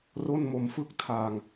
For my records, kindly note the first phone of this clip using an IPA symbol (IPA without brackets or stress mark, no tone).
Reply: r